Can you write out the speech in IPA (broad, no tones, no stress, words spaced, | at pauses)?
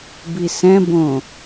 bisɛ̃bõ